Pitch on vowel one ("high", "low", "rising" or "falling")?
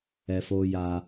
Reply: high